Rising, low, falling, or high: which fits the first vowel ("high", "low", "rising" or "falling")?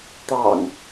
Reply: low